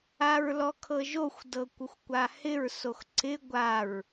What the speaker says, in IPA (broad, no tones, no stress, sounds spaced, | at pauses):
a ɹ l ɔ kʰ ɤ ʒ o xʷ d ɤ kʷ ə xʷ kʷ a h ɪ ɹ s o x ǀ ɪ ɡʷ a ɹ